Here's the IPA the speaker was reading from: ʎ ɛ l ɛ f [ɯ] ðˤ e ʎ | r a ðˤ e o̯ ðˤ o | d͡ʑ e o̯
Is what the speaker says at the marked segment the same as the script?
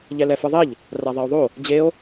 yes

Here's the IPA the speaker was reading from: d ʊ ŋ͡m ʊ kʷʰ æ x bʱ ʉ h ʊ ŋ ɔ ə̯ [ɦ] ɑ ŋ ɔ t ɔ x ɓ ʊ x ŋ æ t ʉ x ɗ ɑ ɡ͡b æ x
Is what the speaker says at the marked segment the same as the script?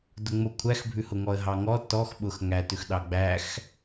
yes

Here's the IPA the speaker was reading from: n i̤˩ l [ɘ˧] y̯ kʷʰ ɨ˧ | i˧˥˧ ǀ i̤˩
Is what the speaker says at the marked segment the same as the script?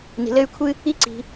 yes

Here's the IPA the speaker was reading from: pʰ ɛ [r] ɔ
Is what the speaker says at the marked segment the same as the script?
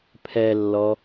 no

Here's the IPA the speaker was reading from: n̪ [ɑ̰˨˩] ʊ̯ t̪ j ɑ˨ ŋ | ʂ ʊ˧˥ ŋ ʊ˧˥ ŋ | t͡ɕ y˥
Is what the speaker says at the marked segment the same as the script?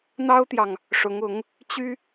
no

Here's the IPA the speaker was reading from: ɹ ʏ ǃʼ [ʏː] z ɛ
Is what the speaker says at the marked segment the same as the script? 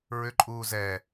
no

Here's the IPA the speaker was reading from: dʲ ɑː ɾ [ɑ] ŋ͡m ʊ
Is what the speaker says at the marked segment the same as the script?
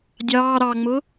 yes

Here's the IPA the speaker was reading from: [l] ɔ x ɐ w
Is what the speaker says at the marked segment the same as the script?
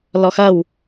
yes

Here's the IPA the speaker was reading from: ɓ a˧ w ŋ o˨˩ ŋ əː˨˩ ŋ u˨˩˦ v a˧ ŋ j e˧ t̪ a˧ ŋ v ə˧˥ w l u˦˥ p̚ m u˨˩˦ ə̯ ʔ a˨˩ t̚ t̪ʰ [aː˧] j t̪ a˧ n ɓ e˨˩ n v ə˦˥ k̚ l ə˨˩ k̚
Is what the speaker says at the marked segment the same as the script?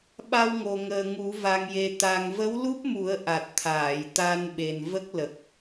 no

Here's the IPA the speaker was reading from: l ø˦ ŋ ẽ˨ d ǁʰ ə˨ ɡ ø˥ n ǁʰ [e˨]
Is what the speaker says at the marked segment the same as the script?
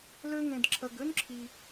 no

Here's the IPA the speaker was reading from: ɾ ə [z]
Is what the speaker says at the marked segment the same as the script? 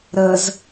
yes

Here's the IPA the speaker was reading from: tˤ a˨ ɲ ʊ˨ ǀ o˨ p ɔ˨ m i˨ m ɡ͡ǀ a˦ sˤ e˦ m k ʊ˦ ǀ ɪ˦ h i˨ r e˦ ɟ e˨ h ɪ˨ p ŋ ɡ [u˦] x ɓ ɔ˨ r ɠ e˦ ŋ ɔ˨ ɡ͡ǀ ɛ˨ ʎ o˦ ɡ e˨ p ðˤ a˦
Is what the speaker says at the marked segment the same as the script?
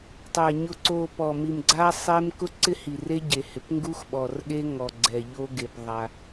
yes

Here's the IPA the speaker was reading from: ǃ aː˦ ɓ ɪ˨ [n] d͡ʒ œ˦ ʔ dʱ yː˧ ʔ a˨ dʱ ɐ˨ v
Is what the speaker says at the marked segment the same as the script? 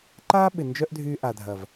yes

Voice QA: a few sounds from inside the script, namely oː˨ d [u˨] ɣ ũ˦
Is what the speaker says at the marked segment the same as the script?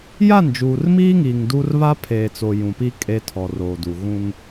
yes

